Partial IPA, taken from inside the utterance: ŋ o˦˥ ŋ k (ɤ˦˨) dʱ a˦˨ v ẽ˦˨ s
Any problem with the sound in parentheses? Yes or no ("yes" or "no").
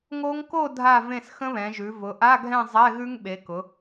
yes